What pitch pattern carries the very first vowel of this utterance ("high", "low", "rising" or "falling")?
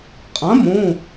rising